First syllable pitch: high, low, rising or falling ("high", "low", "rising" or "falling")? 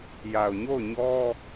low